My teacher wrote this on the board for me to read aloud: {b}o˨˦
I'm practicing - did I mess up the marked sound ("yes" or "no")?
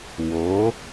yes